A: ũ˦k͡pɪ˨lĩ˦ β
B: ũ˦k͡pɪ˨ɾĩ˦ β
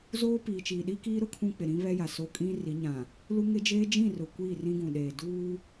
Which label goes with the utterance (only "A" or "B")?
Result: B